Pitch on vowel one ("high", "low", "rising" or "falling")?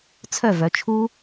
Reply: falling